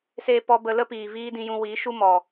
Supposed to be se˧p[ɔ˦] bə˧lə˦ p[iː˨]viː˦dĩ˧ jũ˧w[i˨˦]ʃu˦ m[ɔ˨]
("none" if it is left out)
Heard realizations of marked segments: ɔ˧, iː˨, i˨˦, ɔ˨

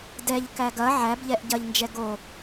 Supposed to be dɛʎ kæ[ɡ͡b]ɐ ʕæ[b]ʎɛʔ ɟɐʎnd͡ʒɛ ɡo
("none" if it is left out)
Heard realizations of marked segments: ɡ, b

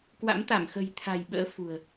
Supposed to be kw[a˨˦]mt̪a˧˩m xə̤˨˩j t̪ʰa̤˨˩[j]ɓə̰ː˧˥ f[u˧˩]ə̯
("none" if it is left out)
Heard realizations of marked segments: a̰˧˥, j, ṳ˨˩

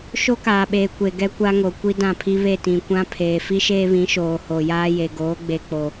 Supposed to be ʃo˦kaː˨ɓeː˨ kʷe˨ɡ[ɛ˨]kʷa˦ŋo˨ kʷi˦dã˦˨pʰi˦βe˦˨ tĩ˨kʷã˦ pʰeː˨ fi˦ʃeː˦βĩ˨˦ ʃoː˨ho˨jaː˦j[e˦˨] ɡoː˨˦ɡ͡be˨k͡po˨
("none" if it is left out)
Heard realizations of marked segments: ɛ˦, e˨

